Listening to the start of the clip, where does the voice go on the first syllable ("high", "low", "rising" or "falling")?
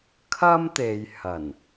high